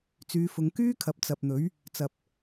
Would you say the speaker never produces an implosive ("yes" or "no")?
yes